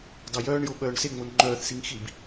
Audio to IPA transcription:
d ɑ j œː ɳ j o ɓ œː ɳ s e ŋ͡m o n ŋ͡ǃ œː θ s i ŋ x i b

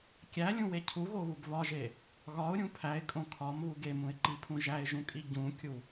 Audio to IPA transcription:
kʲ æ lʲ ũ w e cʰ u ɣ o β u b β ɒ ʒ e | ɣ ɒ ʊ̯ ɾʲ ũ pʰ æ ɪ̯ kʼ õ kʰ ɒ m β u ɡ e m ũ ɪ̯ ǃ i pʰ ũ ʒ æ ɪ̯ ʒ ũ kʼ i ɟ ũ kʲ u

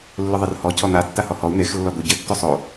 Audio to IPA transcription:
lː ʊ ðˤ ɘ r h ɔ cʰ ɔ n̪ a tː a h ɔ h ɔ u̯ n̪ e x lː ɔ d̪ o ɟ ɘ tː o sˤ o

